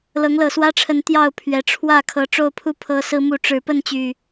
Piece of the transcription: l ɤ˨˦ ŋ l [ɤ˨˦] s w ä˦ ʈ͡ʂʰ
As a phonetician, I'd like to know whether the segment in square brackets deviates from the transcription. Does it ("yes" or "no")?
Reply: yes